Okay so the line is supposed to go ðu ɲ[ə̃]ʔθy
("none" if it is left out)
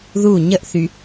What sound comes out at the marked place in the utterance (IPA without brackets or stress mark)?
ə